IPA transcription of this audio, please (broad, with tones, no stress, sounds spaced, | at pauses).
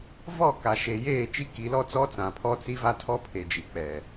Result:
v ɔ˦˨ k a˨ ʃ e˨ j eː˦˨ t͡ʃ i˦ k i˨˦ l ɔ˦ t͡s ɔ˦ t͡s ã˨ pʰ ɔ˦ t͡s i˦ v a˦ tʰ ɔ˦ pʰ e˨ d͡ʒ i˨ k͡p ɛ˨